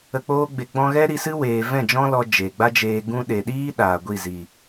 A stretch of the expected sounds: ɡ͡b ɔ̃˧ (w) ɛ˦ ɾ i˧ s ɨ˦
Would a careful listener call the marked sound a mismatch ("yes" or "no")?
yes